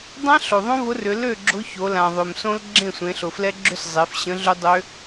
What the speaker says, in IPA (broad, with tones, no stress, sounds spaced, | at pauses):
dˤ ã˦˥ ɬ o˩ ðˤ õ˦˥ v ʊ˨˥ r ʏ˩˧ l ø˥˩ ɡ͡ǁ ʊ˨˥ ç o˩˧ l ã˩ ðˤ ø˩ m s õ˦˥ l ɡ͡ǁ ẽ˥˩ sʷ ẽ˩˧ ɬ ʊ˩ f l ɛ˦˥ ɡ͡ǁ ʏ˦˥ s zˤ e˩˧ f ɕ ə̃˨˥ ɮ ʏ˦˥ dˤ ø˦˥